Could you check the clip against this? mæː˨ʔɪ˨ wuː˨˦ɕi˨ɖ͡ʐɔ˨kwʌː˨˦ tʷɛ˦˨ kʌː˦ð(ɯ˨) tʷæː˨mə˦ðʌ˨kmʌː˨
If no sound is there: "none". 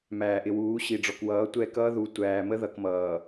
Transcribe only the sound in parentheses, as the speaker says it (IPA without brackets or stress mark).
u˨